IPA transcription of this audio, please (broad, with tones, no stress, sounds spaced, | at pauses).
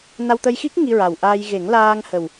n a˧ w t̪ ə˧ j x i˦˥ k̚ ŋ i˧ ɹ a˨˩ w ʔ aː˧ j ɣ e˨˩˦ ŋ l aː˧ ŋ h ə˨˩ w